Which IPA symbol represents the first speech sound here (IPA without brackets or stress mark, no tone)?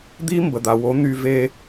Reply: d̪